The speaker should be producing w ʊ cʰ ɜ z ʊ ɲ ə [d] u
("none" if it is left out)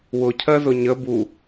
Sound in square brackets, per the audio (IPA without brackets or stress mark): b